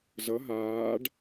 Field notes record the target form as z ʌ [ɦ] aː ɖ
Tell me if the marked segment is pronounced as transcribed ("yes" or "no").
yes